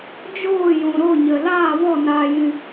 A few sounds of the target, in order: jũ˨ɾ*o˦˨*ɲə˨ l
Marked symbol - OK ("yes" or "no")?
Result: yes